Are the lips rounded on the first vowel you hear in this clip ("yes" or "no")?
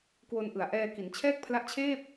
yes